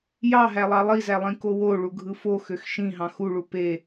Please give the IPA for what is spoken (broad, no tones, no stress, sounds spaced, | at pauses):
j ɑ ɦ æ lˠ ɑ lˠ i z æ lˠ ĩ k o w o ɭ u ɡʱ ɯ f o x ø x ʃ ĩ ɦ ɑ̃ x u ɭ u p e